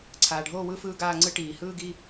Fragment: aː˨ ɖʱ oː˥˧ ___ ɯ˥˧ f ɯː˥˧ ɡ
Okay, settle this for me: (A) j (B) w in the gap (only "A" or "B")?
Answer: B